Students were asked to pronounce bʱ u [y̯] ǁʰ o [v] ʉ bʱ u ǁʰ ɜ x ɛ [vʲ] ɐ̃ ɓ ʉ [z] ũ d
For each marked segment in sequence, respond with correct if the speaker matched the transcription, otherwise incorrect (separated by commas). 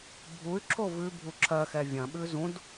correct, correct, correct, correct